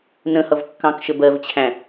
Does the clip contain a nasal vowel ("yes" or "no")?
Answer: yes